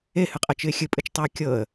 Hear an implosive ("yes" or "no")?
no